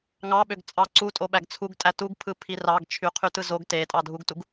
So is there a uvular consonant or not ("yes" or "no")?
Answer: yes